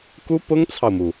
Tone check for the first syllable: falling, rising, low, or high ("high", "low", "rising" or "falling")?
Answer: high